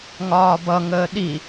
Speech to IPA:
ŋ ɒː b ʌ ŋ əː ɗ i

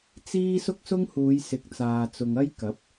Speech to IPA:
t͡s iː˥ s ʊ˥ k̚ s ʊ˥ ŋ h uː˨˧ j s ɪ˨˥ k̚ t͡s aː˨ t͡s ʊ˨ ŋ ɐ˥ j k ɐ˨˥ p̚

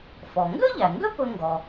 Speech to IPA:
f ɔ˩ ŋ ɡ ø˥ ʎ æ˩ ŋ ɡ ø˥ p ɵ˥ ŋ ɡ ɔ˩

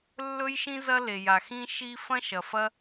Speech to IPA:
lː ɵ˥ j ʃ ĩ˥ z ɐ˥ l e˩ j a˩ x ĩ˥ ʃ i˥ f ɐ̃˥ ʃ ɐ˩ f ɐ˥

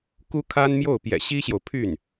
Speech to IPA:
k u˥ kʰ a˥ n m j o˥˩ ʊ̯ p j ɛ̰˨˩ ɕ i˥ ɕ j o˨ ʊ̯ pʰ y˥˩ n

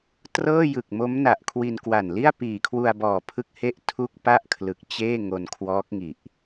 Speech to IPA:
t r ɤː˥˩ j ɯ˨˩ k̚ m o˦˥ m n a˨˩ ʔ kʰ w i˧ n k w a˨˩ n l i˥˩ a̯ p iː˨˩ kʰ w u˧ a̯ b ɔː˨˩ pʰ ɯ˦˥ k̚ h e˥˩ ʔ tʰ u˥˩ k̚ p a˥˩ ʔ kʰ l ɯ˨˩ k̚ t͡ɕ eː˥˩ ŋ o˧ n kʰ w ɔː˦˥ k̚ ŋ i˨˩ ʔ

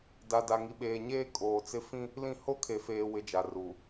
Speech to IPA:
d a˨ d a˨ ŋ i˨ ɓ eː˨ ɲ eː˦ kʼ oː˨ t͡s ɪ˦ f ĩ˦ | l ĩ˦˨ h o˦ kʰ e˨ f eː˨ w ɪ˦ d͡ʒ a˨ r u˨

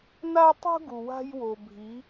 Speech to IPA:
n a˧ tˤ ṳ˧ ɡ u˩ w a̤˧ j w o˩ bʱ i˩˧

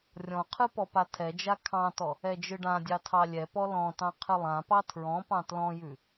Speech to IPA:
rʲ ɔ̃ qʰ ɯ p ɔ p a tʰ ɛ d͡ʒ a kʰ ɑ̃ t ɔ | ɛ d͡ʒ ɯ ɖ ã dʲ ɑ tʰ ɑ lʲ ɛ p ɔ l ɔ̃ t ɑ̃ qʰ ɨ lˠ ã p ɑ tʰ ɹ ɔ̃ p ɑ̃ t l ɔ̃ j ʉ

